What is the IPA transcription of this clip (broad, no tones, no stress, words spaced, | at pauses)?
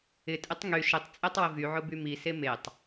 ɪtʼɪtˤ ŋy ʃɪtˤ t͡sʼetˤwɪvyʕʊ bymise metˤ